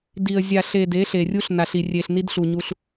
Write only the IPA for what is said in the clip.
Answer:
d i˨ ə̯ zʲ a˨ ɬ e˨ d e˨˦ ɬ e˨ rʲ u˦ ɬ n a˨ ɬ i˨ rʲ e˨ ɬ n i˦ d ɬ u˨ ɲ u˦ ɬ

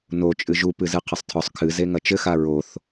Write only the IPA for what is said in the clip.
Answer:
n o t͡ʃʼ ɨ ʒ u p ɨ z ɨ qʰ ɘ sˤ tʰ ɔ sˤ kʰ ɨ z e ŋ ɐ t͡ʃ ɘ x a ɹ o θ

